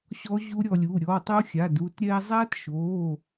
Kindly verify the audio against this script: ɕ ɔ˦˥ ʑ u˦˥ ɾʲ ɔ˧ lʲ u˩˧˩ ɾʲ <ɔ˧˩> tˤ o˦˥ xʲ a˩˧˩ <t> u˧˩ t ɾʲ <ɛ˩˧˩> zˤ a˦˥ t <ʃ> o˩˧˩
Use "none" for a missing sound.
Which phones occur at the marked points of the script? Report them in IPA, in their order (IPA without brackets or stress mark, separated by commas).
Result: ɔ˩˧˩, d, ɛ˧, ʃ